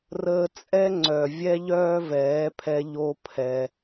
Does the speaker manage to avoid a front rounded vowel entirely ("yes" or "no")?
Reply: no